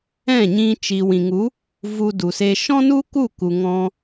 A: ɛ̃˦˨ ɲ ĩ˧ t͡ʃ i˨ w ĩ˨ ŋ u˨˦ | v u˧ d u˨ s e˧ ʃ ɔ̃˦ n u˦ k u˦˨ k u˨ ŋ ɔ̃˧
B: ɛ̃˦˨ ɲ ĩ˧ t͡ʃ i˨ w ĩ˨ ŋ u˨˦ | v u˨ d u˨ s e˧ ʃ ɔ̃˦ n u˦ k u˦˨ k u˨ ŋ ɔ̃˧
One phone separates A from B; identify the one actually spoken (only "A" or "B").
A